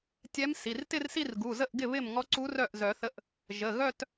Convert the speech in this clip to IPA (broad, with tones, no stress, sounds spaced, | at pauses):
tʲ ɛ˧˥ m s i˩˧˩ r t ɪ˥˧ r s i˥˧ r ɡ u˩˧˩ z ə˥˩ ʔ ɡ ɪ˥˩ β ɪ˥˩ m ŋ ɔ˧˥ ǀ u˧˥ r œ˥˩ ʔ z œ˨˩˦ θ ə˧˥ ʔ | ʒ ə˩˧˩ ɣ œ˥˧ t